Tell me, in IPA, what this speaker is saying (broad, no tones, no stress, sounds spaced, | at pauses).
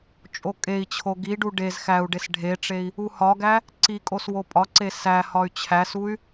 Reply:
t͡ʃʼ o kʼ e i̯ t͡ɕʰ o ɡ i ɖ u ɖ e z x æ u̯ ɖ e s ɖʱ e ʈ͡ʂ e i̯ | u h ɒ ɡ æ | ǀ i kʼ o s w o pʼ ɒ ǀ e s æ h ɒ y̯ t͡ɕʰ æ s u y̯